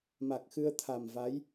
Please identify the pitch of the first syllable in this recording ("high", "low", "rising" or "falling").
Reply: low